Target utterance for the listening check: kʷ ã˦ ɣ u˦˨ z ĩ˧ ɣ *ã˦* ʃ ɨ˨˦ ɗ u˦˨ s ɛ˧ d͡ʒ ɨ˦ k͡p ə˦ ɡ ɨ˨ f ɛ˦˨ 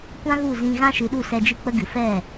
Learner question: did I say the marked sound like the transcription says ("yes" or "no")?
yes